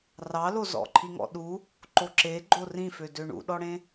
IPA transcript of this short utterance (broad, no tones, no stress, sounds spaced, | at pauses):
r ɑ l o z ɔ̰ ǃʰ i ŋ ɔ̰ ɗ u | ǃ o ǁ e ɡ͡ǃ o r ĩ f ø d ø ɳ ṵ ɗ ɔ ɽ ẽ